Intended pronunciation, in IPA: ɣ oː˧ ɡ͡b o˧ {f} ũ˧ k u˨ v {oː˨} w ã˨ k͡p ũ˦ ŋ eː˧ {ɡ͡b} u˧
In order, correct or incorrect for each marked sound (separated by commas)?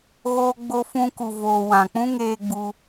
correct, correct, correct